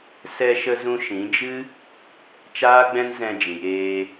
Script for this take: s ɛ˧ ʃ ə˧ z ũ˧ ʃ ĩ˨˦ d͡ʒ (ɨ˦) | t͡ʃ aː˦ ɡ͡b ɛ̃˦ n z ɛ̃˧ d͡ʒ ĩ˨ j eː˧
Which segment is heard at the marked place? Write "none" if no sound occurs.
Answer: ɨ˦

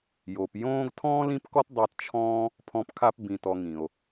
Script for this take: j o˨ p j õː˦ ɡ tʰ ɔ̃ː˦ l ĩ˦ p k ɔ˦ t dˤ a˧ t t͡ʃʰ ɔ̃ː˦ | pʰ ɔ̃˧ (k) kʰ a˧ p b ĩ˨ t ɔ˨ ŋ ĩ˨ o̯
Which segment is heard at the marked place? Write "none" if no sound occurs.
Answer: p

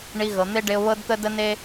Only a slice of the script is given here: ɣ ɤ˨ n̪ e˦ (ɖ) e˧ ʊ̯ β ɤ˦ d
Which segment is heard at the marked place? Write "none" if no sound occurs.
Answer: ɖ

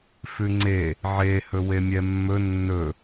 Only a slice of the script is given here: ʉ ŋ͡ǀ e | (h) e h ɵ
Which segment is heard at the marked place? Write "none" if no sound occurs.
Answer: ʕ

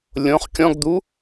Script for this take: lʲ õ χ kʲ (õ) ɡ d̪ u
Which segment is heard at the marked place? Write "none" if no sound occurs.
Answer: ɔ̃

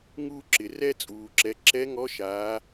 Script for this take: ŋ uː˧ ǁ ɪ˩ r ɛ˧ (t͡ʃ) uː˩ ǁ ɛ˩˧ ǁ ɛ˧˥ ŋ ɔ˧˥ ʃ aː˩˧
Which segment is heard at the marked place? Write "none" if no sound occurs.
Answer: t͡sʼ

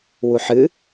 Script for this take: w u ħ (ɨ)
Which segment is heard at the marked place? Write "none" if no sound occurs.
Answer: ɨ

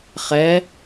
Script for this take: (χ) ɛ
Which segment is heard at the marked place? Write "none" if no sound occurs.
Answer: χ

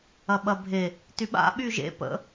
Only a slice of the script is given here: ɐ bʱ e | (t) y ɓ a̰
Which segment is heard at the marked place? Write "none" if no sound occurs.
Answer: t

